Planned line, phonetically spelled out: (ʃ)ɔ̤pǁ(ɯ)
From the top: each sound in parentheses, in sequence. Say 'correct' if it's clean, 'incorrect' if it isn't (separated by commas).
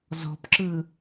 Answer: incorrect, correct